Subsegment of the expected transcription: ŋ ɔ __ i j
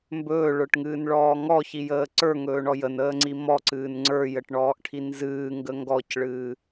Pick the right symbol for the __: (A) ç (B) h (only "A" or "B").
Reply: A